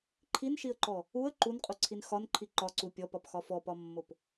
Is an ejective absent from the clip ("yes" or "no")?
no